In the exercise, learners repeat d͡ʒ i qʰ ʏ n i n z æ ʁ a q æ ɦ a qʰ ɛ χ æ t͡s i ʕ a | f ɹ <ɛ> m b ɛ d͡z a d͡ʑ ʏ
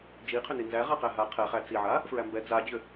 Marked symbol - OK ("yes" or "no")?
no